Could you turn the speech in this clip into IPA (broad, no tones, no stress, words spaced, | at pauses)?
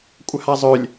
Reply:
kʷʼəhazˤølʲ